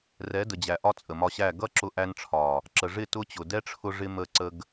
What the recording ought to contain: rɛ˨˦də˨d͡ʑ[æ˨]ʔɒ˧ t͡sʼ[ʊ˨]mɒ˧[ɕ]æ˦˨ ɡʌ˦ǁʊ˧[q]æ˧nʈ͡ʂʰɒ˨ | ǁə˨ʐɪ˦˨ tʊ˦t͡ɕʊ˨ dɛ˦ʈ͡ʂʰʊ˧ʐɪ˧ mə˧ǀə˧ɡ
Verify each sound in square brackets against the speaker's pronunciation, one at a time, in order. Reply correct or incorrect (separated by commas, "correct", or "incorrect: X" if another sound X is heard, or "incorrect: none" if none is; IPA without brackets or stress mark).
correct, incorrect: ə˨, correct, incorrect: ʔ